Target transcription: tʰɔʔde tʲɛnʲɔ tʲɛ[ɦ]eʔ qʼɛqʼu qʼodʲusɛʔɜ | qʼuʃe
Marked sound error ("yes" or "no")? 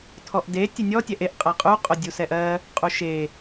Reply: yes